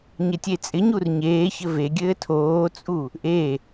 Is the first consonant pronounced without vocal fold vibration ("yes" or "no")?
no